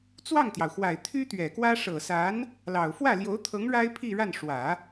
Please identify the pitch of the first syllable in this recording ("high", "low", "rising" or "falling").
falling